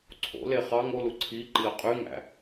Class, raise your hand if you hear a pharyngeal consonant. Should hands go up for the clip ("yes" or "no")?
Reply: no